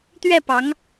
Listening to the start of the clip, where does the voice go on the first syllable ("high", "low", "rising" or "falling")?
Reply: falling